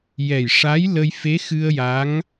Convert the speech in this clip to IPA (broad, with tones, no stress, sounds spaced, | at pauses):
j ɛ˨˩ j ʂ a˧˥ j l ə˧ j f e˧˥ x ɨ˧ ə̯ j a˧˥ ŋ